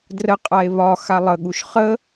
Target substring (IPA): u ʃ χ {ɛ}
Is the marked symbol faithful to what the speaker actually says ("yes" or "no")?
no